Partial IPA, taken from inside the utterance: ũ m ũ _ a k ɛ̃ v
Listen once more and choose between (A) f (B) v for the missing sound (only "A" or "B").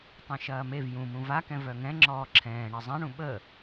B